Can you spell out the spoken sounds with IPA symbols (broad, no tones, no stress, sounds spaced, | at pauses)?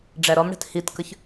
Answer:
ɖ͡ʐ æ ɾ ɔ m ɽ ɛ̤ t h i t k ə ç